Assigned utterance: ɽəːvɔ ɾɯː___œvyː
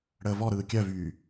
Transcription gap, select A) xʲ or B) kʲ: B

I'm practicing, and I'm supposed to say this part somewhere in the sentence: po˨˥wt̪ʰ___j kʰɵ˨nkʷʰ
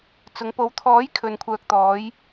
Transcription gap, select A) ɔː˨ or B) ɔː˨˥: B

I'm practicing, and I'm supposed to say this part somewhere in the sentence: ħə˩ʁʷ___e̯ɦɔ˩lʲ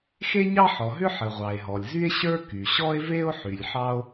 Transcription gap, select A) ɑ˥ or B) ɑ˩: B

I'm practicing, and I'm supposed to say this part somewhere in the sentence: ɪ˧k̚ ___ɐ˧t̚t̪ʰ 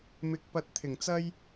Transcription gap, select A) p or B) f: A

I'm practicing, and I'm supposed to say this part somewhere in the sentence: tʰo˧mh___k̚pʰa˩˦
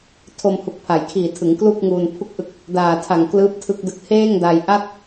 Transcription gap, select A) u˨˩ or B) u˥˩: A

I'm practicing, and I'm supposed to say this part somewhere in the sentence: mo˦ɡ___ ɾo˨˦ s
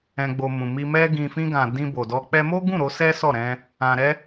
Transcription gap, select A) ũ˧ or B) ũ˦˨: B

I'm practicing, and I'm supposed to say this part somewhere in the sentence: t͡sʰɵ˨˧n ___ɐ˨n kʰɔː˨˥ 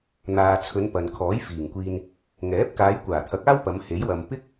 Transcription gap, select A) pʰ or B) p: B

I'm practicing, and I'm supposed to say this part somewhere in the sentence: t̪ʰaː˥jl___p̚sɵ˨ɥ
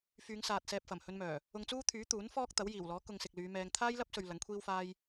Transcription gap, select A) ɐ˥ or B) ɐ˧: A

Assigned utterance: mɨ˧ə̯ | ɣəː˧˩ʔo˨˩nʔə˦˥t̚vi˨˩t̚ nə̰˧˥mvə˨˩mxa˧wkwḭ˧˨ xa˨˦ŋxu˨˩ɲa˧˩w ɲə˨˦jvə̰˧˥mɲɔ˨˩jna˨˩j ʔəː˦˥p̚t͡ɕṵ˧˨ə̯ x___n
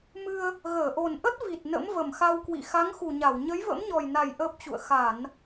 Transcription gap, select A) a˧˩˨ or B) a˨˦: A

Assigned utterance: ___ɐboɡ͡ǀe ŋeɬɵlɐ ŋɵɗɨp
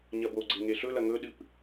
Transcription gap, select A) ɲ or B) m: A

